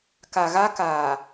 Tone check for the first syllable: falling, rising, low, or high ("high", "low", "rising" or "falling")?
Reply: low